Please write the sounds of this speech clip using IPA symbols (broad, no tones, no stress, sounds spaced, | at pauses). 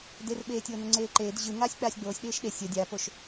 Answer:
d e r ɓ eː tʲ oː n ə ŋ͡ǀ eː ǃ eː d ʑ ɯ ŋ aː sʲ k͡p aː sʲ ɡ͡b oː sʲ ɗ eː ʃ ɗ e sʲ ə dʲ a p o ʃ